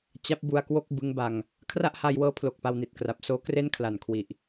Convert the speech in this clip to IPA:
t͡ɕa˦˥p̚bu˧a̯kwo˥˩k̚ bɯ˦˥ŋba˧ŋ | kʰra˥˩ʔha˧jwɤː˦˥ pʰlo˨˩k̚pa˧wni˨˩t̚ kra˨˩p̚ soː˦˥kre˥˩n kʰla˨˩nkʰwi˨˩ʔ

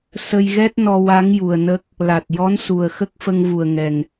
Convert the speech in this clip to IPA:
sə˧jɣɛ˦˥t̚ nɔ˧wa˧˥ŋju˨˩ə̯nə˦˥k̚ | la˨˩t̚ jɔ˧˥n su˨˩ə̯xə˦˥k̚ fə˧ŋvu˨˩ə̯ŋɛ˨˩ŋ

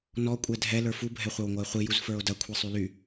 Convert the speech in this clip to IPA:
nɔ kʷʼɛdʱɛ lə˞fu bʱɛχʷɐwŋʷɐe̯χʷi juzfə˞o̯dɐ kʷʰisˤyly

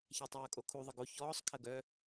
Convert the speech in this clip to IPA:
çatˤœːkʼokʰu ðˤɐɡo çɔːsˤ kʰɐɡœ

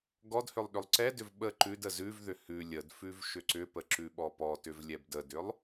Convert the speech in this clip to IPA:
ɡɔdhʏlˠ ɗʏlˠǀɛdʏv ɓə ǃʉd əzʉvðʏ hʉ lʲədfʉv ʃʏǀʏpə ǁʉɓɔpɔtʏv lʲɛbdədʏlˠ

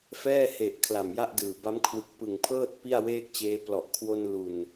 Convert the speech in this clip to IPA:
fɛː˥˩he˨˩ʔ kʰla˨˩mja˥˩ʔdɯː˨˩ ba˦˥mkʰwɯ˨˩k̚pɯ˨˩ŋpʰɤː˥˩t̚ pi˥˩a̯weː˥˩k̚t͡ɕeː˧ plɔ˨˩ʔkʰwo˧n lu˨˩n

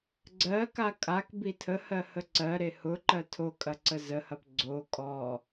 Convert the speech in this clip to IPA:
ɡ͡ǀɜka kʼak bitʰəhɜ həǀɜɾe hʊǃɜ tʰokʼɐ ǀəzəhɐp ɡ͡ǀo kʼɔ

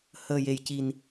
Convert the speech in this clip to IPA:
həː˨˩je˨˩j ci˨˩n

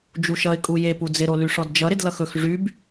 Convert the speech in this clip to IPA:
d͡ʒuʃʌɪ̯ kʼuje pud͡zɪɾo lyʂɔdd͡ʒʌ ɾɪdlʌxɵx ʐyb

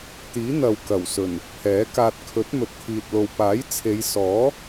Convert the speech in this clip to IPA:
t̪iː˨˥n̪ɐ˨w kɐ˨˩wsɵ˨˩n | pʰɛː˨˥kaː˧t̚ kʰɵ˨˥t̚mɵ˨t̚kʰiː˨t̚lo˨w paː˨˥jt͡sʰe˨˧jsɔː˨˥

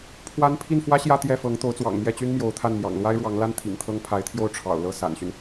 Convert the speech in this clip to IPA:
pʰwa˥n pʰi˥˩nfwä˥ɕjä˥˧ t̪jɛ˥˩fɤ˧˥ŋ t̪o˧˥ʊ̯t͡swɑ̰˨˩ŋmjɛ˥˩t͡ɕy˥n mjo˧˥ʊ̯t̪ʰa˥˩n mjɑ̰˨˩ŋlwa˥ɪ̯ɻwɑ˧˥ŋla˥n t̪ʰḭ˨˩ŋt̪ʰɤ˥ŋ pʰa˧˥ɪ̯t̪ʰjo˥˩ʊ̯ ʈ͡ʂʰɑ̰˨˩ʊ̯lɤ˥˩ sa̰˨˩nɕy˦n

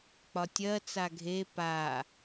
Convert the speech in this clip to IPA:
k͡pɒtʲɜt͡sa ɡʱe pa

